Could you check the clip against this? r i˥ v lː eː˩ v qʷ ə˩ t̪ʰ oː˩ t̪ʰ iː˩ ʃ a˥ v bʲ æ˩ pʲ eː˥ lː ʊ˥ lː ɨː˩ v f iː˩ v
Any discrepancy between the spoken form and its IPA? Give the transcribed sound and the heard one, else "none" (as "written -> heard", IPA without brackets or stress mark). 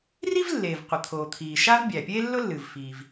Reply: none